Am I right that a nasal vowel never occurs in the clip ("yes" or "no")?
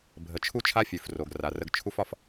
yes